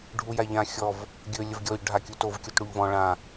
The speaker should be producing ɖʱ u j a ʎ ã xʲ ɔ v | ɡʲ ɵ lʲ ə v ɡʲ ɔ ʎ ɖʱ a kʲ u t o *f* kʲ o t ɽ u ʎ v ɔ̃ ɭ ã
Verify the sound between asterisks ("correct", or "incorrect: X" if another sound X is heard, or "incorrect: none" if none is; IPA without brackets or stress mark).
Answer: incorrect: v